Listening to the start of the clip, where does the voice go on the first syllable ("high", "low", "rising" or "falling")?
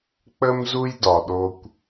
high